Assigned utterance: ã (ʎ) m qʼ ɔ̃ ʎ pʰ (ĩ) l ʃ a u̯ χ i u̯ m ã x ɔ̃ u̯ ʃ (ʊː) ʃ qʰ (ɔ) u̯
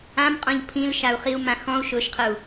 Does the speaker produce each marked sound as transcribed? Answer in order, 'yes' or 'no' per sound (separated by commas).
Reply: no, yes, yes, no